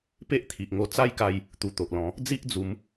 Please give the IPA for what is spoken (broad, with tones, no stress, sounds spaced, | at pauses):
p e˦ ʔ t̪ʰ i˨ ʔ ŋ o˧ t͡s a˦ j k a˧ j | t̪ u˨˩ t̪ o˨ ʔ l ɔ̃˨˦ | d͡z i˦ ʔ d͡z u˨˦ m